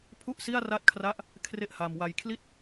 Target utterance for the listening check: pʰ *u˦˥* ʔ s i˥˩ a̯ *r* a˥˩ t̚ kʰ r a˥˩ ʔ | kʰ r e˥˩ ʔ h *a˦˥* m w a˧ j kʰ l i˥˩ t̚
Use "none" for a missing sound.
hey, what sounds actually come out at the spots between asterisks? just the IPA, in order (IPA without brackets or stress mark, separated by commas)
u˥˩, r, a˧